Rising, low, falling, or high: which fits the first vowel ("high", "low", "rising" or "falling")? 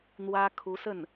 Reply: high